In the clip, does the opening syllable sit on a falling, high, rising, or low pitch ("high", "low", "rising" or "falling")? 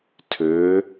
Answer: rising